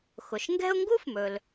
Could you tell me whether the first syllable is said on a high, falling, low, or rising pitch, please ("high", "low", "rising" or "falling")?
low